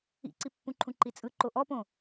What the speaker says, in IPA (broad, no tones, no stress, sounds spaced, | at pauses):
ḭ ǀ i pː ũ ǃʰ ũ ǃ i t͡sʼ ɯ ǃ o ʔ ɔ p õ